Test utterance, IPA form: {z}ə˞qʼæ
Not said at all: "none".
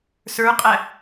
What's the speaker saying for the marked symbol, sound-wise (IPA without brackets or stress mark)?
s